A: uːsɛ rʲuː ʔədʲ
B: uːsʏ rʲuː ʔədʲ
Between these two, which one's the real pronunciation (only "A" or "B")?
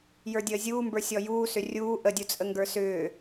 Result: B